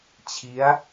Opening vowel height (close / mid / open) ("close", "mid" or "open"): close